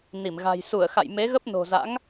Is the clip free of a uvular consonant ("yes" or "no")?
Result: yes